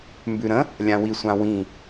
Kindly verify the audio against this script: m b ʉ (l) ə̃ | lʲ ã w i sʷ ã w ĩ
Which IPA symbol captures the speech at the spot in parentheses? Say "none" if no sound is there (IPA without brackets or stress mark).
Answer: ɾ